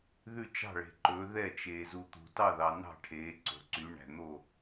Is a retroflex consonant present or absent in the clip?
present